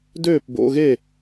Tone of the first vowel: falling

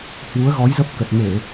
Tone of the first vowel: rising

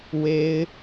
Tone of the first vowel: high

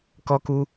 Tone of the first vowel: high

